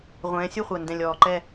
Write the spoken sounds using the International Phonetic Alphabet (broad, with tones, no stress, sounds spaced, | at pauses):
ʁʷ ɛ̃ː˨˦ sʲ u˥˧ χʷ ɜ˨˩ n d ɛ̃˨˩ lʲ ɔː˨˩ ǃ ɛ˥˧